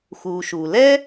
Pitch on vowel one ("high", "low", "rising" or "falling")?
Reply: low